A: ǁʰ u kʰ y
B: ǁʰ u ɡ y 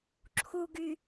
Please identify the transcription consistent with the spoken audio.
B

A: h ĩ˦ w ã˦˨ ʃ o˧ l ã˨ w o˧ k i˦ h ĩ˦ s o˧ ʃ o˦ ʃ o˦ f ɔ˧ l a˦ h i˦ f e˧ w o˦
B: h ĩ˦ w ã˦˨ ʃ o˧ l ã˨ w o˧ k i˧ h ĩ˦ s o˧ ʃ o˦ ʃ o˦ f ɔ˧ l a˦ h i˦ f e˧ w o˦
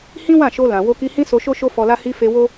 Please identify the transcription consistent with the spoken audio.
B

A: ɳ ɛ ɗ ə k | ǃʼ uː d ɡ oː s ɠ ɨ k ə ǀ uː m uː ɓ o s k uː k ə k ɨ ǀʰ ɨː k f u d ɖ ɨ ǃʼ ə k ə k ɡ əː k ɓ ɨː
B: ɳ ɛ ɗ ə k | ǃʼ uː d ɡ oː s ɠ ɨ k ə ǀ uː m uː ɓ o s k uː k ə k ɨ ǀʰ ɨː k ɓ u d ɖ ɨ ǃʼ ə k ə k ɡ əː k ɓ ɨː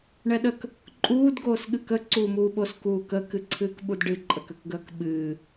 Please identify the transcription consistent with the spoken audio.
B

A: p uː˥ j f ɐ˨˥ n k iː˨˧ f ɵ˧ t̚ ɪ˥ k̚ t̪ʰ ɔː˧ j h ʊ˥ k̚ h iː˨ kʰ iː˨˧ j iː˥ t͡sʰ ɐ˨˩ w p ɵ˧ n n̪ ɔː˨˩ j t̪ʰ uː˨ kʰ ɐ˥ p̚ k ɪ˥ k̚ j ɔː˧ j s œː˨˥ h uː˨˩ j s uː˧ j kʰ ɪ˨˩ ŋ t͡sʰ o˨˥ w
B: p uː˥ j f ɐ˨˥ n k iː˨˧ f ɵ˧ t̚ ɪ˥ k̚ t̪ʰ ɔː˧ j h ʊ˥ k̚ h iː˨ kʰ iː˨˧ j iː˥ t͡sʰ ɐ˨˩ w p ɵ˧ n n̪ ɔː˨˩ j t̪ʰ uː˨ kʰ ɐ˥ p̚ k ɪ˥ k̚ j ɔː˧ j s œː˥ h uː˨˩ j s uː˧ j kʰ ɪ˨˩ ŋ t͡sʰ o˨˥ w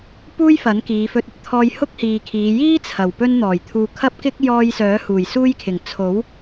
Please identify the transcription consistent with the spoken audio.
A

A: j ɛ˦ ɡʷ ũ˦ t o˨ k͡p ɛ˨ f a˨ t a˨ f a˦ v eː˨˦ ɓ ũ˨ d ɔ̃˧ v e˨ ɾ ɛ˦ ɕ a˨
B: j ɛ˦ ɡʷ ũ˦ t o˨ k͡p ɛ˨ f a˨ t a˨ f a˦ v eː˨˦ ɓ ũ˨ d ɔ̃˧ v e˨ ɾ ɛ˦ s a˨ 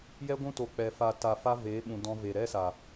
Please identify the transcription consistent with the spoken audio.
B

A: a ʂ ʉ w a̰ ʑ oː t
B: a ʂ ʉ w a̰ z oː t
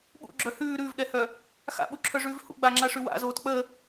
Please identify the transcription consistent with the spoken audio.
B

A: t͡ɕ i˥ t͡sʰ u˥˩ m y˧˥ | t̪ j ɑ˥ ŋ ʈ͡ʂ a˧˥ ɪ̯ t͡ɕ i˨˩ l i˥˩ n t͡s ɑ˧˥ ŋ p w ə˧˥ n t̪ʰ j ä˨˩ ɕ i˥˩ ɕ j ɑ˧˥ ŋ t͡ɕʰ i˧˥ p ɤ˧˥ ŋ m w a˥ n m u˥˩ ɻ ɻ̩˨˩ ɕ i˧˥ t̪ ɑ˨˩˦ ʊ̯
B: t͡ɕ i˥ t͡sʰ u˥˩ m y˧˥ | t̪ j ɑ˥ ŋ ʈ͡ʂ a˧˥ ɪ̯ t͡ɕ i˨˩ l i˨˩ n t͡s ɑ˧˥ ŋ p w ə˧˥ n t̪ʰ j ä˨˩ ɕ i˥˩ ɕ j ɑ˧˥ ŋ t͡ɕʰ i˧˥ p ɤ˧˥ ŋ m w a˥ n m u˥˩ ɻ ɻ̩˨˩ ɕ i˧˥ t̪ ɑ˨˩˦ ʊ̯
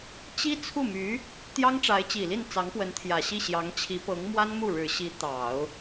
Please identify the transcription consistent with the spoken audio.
A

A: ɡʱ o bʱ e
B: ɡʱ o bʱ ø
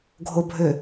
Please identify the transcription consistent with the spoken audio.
B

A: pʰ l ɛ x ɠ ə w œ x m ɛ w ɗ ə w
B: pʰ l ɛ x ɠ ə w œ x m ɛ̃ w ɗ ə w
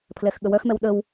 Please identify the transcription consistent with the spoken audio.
A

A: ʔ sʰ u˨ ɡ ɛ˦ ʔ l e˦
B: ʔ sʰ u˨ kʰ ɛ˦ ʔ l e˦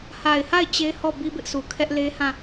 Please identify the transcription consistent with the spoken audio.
B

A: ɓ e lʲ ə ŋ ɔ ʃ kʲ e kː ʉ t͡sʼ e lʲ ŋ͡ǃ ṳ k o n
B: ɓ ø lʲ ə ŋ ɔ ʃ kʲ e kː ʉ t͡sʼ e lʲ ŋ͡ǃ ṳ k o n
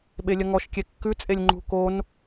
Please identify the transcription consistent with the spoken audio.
A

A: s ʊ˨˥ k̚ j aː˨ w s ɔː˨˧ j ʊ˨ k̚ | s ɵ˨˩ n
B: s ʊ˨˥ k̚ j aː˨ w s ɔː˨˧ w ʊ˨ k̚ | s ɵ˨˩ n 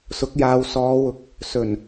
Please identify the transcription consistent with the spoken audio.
B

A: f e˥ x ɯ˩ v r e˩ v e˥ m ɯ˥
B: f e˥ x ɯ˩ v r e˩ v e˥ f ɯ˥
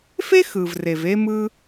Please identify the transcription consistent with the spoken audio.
A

